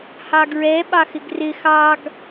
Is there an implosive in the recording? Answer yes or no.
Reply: yes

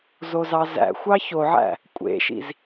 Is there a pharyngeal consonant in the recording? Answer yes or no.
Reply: yes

